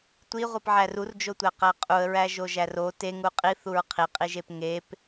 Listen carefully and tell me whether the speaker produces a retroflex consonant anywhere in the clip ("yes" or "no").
no